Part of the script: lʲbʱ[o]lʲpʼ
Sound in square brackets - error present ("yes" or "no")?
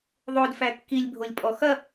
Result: no